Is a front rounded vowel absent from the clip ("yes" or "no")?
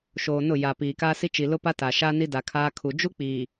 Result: yes